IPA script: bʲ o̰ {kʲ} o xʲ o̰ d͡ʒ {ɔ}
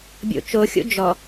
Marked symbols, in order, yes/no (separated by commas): no, yes